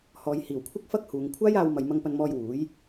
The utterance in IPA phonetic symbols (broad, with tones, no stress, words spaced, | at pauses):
hɔː˨jhiː˨˩wkʷʰɐ˥k̚ fɐ˥k̚huː˨ŋ kʷʰaː˥jaː˧wmɐ˨j mɐ˧ŋpɐ˧nmɔː˧j wuː˨˥j